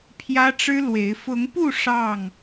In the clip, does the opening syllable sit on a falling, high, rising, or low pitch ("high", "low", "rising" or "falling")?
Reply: high